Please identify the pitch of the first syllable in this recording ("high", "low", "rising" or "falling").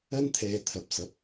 high